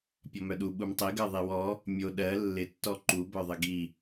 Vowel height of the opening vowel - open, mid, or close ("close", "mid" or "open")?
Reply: mid